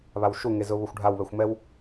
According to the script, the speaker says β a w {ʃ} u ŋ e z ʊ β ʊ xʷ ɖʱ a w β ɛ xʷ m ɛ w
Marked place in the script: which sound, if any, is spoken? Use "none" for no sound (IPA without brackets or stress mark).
ʃ